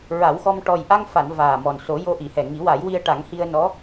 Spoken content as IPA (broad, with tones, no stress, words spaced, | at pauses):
ɹa˨˩˦wxɔ˧m ʈɔ˨˩jʔa˧ŋfa˨˩˨n vaː˨˩ mɔ˨˩nso˨˩˦jo˧ ʔi˨˩˨hɛ˨˩ŋi˨˩˦wa˨˩˦j wi˧ə̯ʈa˨˩˦ŋ hi˧ə̯nɔ˧˥